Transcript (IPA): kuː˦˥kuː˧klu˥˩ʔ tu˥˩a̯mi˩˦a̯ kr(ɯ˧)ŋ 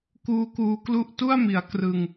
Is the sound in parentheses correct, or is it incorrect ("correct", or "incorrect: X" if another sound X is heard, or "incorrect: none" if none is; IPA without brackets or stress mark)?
correct